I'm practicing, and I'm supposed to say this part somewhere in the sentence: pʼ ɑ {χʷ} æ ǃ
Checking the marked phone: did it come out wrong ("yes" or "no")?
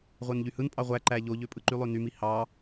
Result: yes